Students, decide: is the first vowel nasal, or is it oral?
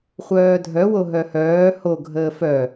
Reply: oral